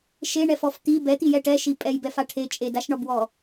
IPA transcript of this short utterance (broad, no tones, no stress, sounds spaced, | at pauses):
ʃ e ɳ ɛ f ɔ f t̪ i b ɛ t̪ i j ɛ ʈ ɛ ʃ i pʼ ɛ j b ɛ f a ʈʰ e t͡ʃʼ e d a ʃ ɳ ɒ b w ɔ